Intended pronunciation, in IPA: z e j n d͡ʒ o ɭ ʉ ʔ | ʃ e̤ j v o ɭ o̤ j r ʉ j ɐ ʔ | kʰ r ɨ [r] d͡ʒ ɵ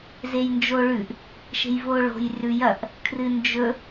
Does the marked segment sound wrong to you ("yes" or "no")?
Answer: yes